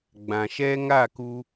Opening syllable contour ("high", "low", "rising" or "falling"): low